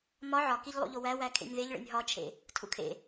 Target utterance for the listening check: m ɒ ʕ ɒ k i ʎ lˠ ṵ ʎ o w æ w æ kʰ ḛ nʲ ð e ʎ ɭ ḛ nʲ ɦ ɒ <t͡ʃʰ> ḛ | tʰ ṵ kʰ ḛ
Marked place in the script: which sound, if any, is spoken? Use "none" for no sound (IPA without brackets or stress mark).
t͡ʃʰ